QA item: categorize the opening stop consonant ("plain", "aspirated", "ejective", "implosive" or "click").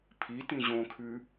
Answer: aspirated